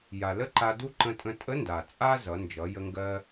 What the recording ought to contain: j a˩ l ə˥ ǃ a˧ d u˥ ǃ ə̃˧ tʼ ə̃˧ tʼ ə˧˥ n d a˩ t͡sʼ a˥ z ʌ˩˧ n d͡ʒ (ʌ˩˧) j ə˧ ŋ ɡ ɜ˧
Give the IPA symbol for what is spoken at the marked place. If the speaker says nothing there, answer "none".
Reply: ʌ˩˧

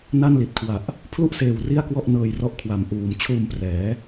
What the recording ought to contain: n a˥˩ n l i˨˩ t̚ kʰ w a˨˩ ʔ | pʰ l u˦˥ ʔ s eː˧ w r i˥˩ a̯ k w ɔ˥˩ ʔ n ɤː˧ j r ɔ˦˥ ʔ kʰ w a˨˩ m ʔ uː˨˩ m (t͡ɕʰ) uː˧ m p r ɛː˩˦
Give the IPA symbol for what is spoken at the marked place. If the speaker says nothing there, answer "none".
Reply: t͡ɕʰ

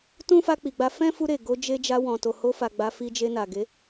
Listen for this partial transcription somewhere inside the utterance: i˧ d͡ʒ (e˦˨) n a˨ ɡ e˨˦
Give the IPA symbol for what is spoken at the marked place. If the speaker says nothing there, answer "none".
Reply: e˧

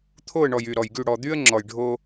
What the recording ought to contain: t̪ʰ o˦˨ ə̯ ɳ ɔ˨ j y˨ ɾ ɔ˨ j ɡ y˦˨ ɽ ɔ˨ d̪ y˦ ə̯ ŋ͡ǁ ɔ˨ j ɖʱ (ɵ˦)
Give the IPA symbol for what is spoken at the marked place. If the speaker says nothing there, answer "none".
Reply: o˦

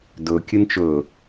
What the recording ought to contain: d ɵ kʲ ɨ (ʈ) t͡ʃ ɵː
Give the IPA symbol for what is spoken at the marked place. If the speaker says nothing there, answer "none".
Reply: n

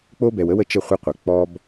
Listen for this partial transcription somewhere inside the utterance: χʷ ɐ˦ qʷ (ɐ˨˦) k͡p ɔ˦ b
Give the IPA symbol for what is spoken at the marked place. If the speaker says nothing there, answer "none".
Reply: ɐ˨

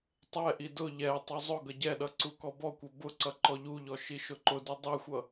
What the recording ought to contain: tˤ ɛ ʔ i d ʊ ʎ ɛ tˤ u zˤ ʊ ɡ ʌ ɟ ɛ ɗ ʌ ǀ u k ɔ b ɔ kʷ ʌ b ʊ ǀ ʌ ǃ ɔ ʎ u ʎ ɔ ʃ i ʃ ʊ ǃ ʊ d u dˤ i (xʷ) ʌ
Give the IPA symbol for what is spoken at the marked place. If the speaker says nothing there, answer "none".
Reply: xʷ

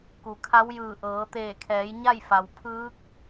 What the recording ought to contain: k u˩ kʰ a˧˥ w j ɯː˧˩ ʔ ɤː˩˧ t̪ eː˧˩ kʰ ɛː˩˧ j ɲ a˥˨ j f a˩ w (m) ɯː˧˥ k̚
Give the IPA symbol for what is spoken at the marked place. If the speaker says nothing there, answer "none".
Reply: pʰ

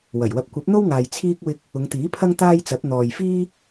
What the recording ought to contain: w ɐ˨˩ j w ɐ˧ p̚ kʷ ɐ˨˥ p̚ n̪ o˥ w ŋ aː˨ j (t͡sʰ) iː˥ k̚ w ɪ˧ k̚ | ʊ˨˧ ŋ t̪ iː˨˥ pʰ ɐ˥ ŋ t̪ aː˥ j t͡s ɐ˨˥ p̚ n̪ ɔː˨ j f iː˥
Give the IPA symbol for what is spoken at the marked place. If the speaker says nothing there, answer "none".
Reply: t͡sʰ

